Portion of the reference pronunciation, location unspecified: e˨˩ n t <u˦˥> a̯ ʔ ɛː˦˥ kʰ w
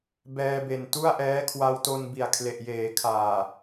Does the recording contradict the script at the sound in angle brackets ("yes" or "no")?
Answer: yes